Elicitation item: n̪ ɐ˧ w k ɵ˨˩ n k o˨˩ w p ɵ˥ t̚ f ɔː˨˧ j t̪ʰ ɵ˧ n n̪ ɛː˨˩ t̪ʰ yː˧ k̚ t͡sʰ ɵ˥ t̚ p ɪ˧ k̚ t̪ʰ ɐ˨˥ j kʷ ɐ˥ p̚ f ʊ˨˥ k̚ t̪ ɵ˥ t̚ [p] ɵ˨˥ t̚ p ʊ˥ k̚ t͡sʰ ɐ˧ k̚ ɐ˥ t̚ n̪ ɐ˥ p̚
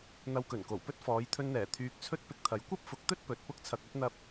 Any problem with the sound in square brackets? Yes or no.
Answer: no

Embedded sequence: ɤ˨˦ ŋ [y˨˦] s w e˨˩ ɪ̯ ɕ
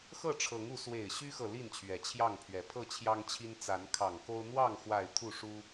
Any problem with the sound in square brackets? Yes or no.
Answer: yes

